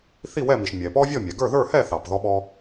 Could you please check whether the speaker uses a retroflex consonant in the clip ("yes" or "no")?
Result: no